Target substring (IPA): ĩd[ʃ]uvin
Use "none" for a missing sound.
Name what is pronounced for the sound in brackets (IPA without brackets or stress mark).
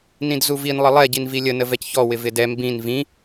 z